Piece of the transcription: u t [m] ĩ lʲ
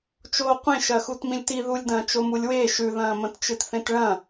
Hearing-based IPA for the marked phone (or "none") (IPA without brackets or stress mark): m